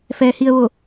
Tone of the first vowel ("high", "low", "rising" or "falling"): low